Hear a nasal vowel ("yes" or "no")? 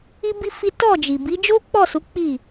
no